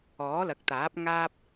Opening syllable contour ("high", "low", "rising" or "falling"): rising